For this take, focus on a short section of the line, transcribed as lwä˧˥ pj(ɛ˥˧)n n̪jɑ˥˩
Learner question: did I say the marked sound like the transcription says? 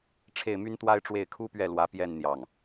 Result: yes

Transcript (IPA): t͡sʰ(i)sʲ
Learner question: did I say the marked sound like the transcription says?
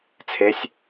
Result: no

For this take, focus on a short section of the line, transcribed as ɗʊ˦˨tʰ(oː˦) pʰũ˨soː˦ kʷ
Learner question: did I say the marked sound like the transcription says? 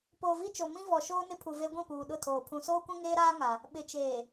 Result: no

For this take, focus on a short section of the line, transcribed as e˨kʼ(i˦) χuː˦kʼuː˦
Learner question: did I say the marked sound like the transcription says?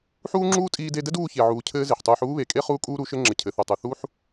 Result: no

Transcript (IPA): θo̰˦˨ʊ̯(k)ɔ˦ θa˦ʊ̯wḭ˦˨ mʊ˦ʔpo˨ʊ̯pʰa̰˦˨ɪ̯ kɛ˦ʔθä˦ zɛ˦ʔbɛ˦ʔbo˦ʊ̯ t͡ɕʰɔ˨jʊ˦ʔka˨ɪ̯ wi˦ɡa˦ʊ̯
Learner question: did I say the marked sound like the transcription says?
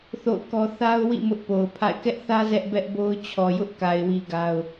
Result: yes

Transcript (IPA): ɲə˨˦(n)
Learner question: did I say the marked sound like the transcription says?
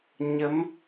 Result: no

